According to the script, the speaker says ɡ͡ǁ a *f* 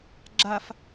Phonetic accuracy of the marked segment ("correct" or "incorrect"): correct